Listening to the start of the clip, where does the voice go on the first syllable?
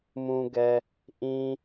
high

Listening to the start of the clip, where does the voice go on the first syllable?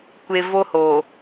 low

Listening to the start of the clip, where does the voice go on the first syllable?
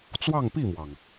falling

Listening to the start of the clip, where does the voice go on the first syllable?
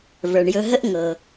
low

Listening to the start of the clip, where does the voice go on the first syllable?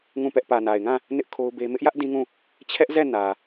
falling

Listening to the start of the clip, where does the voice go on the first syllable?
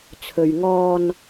low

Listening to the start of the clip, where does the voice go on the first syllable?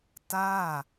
falling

